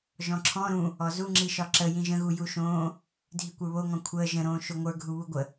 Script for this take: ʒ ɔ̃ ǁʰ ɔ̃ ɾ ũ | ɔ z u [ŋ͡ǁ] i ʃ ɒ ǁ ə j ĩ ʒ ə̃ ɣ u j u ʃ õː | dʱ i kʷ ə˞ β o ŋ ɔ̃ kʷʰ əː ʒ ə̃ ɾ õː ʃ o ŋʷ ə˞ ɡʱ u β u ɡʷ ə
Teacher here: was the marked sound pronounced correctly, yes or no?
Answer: yes